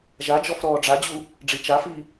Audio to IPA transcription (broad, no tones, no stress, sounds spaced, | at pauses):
ʒ a d͡ʒ ɔ f ɾ ɔː ɖ͡ʐ a d͡ʑ u | ɖ͡ʐ i t͡ʃ a f i